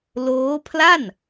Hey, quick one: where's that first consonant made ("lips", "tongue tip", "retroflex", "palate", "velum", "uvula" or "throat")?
tongue tip